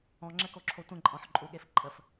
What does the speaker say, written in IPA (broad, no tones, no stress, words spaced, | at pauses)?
ɔ̃ŋ͡ǁɘkoǁʰo tʷə̃ǃʼɔ̃ħǃʼuɠef ǃʼəf